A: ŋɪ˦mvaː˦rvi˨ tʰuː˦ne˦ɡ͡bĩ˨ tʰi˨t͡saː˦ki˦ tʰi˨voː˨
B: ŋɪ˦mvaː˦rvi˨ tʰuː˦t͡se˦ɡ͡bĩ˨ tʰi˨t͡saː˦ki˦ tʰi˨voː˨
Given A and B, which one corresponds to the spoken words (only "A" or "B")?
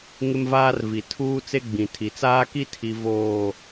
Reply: B